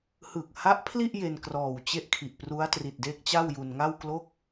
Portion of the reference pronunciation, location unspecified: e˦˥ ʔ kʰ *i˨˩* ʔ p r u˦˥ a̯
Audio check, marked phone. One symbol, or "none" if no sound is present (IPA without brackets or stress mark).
i˨˩